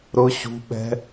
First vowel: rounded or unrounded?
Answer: rounded